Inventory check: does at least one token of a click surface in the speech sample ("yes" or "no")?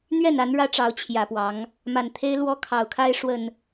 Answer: no